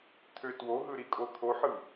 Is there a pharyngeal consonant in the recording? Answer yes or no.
yes